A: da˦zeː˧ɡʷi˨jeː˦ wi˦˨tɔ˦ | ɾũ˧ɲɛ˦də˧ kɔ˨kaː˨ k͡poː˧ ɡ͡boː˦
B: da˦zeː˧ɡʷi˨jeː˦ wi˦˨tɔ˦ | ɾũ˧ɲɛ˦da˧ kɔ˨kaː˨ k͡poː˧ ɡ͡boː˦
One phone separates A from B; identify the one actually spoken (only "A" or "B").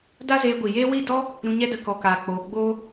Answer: A